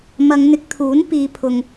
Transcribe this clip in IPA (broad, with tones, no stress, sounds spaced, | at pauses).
m ɐ˨˧ ŋ n̪ ɪ˨˥ k̚ t̪ʰ uː˨˥ n p iː˨˧ pʰ ʊ˨ ŋ